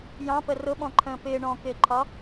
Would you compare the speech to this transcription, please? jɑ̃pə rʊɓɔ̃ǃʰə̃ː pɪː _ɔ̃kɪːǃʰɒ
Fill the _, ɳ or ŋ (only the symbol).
ɳ